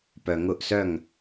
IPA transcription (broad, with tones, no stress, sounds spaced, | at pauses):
p œ˨ ŋ ʊ˦˨ ʔ s œ˦˨ ŋ